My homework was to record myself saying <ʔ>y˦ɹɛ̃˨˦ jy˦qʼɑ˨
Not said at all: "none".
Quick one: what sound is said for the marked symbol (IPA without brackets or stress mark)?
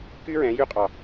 k